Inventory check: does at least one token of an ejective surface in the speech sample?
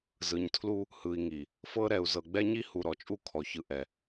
yes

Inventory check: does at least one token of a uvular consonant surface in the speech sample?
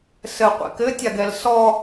yes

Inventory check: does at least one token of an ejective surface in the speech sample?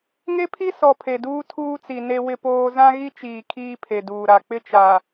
no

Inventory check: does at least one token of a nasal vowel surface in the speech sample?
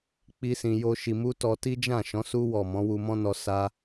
yes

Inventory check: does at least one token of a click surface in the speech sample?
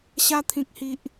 no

